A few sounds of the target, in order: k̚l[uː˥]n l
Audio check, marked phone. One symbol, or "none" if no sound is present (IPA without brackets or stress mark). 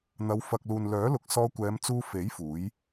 uː˨